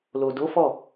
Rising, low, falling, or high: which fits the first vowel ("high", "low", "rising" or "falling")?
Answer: low